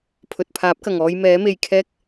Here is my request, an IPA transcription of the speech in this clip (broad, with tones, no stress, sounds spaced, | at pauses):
pʰ ɵ˨ t̚ pʰ aː˨˥ p̚ k ɐ˨˩ ŋ ɔː˧ j m ɛː˨˥ m e˨ j kʰ ɛː˥ k̚